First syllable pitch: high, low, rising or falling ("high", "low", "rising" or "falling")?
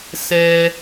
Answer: low